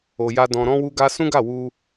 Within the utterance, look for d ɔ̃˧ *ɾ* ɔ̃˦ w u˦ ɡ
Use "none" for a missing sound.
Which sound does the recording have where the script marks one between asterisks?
ɾ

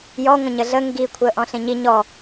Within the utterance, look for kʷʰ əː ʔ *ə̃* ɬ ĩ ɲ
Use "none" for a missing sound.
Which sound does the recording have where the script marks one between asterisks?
ɔ̃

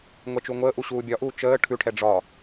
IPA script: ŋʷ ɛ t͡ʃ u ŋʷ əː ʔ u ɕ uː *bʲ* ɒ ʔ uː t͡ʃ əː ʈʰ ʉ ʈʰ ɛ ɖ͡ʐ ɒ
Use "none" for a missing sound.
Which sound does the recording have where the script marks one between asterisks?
bʲ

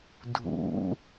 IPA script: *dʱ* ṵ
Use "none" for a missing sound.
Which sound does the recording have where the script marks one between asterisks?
dʱ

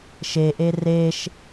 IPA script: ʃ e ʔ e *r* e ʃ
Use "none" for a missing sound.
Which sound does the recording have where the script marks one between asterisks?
r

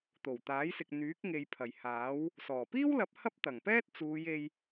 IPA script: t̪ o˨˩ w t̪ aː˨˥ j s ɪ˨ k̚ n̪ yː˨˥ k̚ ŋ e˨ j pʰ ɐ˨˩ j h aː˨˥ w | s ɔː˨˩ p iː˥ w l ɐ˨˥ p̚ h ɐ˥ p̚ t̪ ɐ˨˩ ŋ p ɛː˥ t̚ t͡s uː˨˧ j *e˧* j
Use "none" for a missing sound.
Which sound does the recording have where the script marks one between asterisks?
e˧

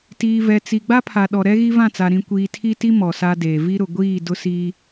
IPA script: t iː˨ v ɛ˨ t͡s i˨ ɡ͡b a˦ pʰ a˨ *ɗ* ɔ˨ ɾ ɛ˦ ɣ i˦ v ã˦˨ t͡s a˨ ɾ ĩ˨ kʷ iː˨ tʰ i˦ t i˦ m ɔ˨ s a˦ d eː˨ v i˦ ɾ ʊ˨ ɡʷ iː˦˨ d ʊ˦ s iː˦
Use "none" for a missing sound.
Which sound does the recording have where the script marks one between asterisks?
ɗ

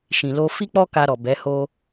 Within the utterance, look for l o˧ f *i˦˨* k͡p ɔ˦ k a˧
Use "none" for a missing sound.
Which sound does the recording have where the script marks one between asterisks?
i˦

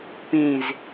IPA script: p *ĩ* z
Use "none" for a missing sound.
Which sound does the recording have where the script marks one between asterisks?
ĩ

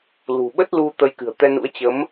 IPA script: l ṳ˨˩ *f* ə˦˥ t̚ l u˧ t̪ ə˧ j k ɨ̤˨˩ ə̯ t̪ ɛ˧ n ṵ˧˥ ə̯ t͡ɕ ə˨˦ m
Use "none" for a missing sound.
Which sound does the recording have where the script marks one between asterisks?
ɓ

